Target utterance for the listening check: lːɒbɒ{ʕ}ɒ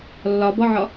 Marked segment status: correct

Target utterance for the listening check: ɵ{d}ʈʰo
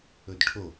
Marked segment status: correct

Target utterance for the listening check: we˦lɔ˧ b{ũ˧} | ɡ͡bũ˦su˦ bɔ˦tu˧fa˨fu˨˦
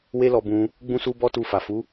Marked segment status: correct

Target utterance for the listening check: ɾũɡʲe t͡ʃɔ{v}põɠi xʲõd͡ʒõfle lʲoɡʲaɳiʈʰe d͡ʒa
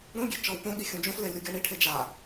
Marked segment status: incorrect: w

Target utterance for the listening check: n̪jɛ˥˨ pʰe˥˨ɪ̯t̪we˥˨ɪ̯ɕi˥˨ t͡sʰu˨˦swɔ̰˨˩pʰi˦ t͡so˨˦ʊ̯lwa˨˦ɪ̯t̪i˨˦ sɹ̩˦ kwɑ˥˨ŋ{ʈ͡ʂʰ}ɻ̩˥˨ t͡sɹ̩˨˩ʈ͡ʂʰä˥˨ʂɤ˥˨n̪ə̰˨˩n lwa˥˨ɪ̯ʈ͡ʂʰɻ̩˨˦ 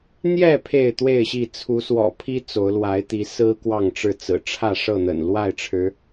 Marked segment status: incorrect: ʈ͡ʂ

